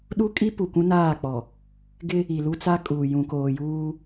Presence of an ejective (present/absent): present